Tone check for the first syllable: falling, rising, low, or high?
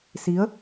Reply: rising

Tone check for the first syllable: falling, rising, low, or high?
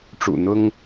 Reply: low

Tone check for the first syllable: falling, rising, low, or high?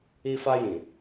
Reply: high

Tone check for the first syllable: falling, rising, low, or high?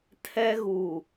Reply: high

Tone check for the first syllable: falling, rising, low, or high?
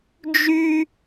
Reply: high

